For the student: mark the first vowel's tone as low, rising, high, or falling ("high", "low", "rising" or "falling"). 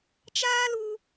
high